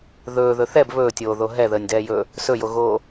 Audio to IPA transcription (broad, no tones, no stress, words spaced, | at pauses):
ðɵːðɵ θɛb βɵːtʲoːðo ɦɛðəːnʲdɛːjɵː | sɵjoɣoː